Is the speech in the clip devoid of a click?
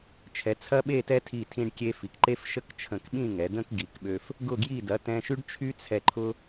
no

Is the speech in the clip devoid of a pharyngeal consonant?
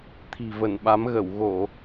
yes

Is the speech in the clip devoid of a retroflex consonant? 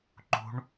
no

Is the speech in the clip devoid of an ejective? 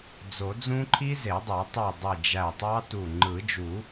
yes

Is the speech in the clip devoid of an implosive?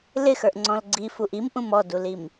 yes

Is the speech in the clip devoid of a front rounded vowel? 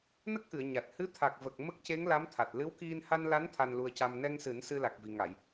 yes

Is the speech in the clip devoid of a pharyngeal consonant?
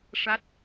yes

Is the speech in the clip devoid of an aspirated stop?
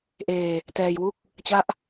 yes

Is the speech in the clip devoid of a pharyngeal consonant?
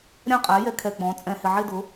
no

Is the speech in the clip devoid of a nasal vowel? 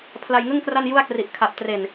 yes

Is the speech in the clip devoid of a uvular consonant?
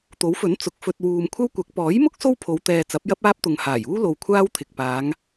yes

